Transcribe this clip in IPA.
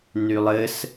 nylˠɘs

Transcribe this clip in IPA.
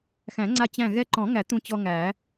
xæ̃˨˩˦ŋ͡ǀa˧ t͡ɕæ̃˧˩ ɣɛ˧ǃɔ̃˨˩˦ŋæ˨˩˦ t̪ũ˧t͡ɕɔ˧ŋæ˨˩˦

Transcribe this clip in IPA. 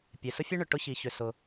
pʲe˩sʊ˥fʲʉ˥ɳʏ˩ ʈʊ˥çi˩çʏ˩ sʊ˩

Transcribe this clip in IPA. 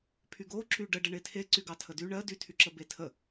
pʰyɡo ǁyɖəɖə ɳetʰe ǀyɡɑtʰədy ɳɜ dytʰyǁə betʰə

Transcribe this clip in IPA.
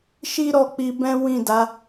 ʃi˦ɾɔ˦˨k͡pi˧bɛ̃˦ wĩ˦˨da˨˦

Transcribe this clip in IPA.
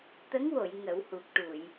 t̪ə˧˥ŋwo˨˩˨j ŋə˨˩˦whu˨˩k̚ʈu˨˩˨j

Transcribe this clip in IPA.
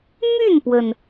my˥˩npwə˩n

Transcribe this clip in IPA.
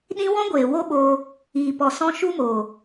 ɗĩ˦ wɔ̃˦ɡʷeː˨ wo˦ɓoː˧ | iː˨pɔ˨sɔ̃˧ ʃu˦moː˨

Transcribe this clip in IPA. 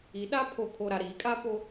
i˨˦ɗa˦ pʰo˨kʰo˨ɾa˨ ɾiː˨˦kʼa˦po˦

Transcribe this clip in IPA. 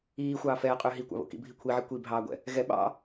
iːxʷɑː fɛːqʼʏː ɦikʷɑ̰βo̰ kḭbʱi kʷʰiʕi kʷibʱɑːɡʷɛ̰ | ɣɛ ɓɑ̰

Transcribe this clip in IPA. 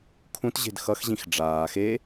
kʰũt ʑe̤dxʌxʑĩx ɖ͡ʐaː xe

